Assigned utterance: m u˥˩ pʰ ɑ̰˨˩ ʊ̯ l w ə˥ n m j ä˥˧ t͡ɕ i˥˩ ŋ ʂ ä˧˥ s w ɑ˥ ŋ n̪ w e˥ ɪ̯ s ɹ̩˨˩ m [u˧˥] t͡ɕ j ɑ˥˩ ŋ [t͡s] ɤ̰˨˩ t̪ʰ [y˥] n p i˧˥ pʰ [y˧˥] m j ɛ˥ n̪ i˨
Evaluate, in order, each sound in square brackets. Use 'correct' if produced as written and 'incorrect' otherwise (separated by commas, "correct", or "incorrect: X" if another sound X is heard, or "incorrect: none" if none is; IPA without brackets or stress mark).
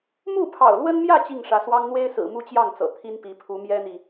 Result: incorrect: u˥, correct, incorrect: i˥, incorrect: u˧˥